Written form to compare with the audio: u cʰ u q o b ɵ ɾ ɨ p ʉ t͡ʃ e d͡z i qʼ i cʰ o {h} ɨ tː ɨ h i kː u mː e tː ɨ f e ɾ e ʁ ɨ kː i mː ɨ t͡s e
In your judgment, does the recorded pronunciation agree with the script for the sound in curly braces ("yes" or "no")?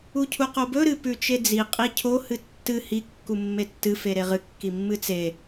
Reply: yes